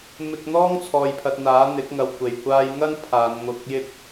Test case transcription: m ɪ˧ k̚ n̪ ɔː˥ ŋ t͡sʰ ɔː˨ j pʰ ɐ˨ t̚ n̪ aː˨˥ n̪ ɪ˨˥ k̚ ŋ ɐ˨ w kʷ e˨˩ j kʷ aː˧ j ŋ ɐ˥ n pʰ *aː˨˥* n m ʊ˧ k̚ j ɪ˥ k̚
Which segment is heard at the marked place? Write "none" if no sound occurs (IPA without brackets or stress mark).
aː˨˧